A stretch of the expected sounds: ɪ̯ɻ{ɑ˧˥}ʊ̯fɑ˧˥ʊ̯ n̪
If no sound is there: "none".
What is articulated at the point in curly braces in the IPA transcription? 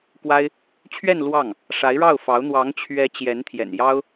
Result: ɑ˥˩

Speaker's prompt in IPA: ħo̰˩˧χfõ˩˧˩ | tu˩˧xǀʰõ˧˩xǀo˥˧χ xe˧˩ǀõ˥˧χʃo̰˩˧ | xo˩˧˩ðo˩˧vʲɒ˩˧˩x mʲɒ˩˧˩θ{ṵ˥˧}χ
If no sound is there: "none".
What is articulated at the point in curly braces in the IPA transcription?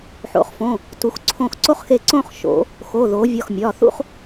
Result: ṵ˥˧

